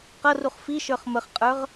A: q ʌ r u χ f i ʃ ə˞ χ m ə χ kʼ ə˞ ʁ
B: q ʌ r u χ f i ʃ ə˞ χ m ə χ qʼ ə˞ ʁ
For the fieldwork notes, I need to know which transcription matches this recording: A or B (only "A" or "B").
B